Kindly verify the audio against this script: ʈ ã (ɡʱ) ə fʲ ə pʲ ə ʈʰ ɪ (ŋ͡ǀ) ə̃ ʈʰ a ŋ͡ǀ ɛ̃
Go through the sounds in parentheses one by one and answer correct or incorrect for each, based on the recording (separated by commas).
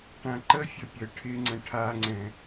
incorrect, correct